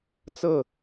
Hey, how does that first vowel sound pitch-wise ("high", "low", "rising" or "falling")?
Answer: falling